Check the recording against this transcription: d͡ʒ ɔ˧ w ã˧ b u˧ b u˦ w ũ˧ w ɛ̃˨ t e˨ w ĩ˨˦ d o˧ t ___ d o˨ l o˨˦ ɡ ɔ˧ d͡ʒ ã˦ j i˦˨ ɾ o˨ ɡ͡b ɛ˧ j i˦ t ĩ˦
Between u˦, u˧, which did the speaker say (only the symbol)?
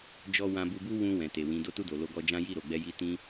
u˧